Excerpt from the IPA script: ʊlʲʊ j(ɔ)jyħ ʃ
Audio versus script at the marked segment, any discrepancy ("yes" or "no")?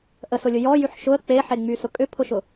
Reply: no